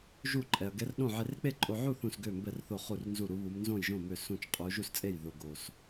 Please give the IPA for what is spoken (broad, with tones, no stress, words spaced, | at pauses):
ʒu˥˨ǃʼɛ˧ɐ̯ ɡɛ˧˥rɗõ˥˨ ʕe˧rk͡pe˥˨ǃʼo˧ʕu˥˨ θũ˥˨sɡø˥˨mbɛ˥˨rθo˥˨ χu˥˨rnzu˥˨ ɾu˧˥βu˧˥m nzõ˥˨jʒõ˥˨ mø˥˨sũ˥˨t͡ʃ qʼu˧˥ ʒu˥˨st͡sʼe˥˨jðo˧ ɡo˧s